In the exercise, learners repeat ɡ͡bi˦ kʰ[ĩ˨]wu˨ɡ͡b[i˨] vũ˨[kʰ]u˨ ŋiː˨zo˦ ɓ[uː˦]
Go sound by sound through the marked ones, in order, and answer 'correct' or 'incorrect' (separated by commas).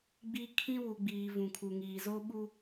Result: incorrect, incorrect, correct, incorrect